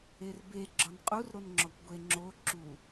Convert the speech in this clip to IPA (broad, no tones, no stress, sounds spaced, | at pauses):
e r b e ɡ͡ǁ ɒ n qʼ u r ɾ o n ŋ͡ǁ ɔ kʷ ɡʷ e ŋ͡ǁ o ǁ u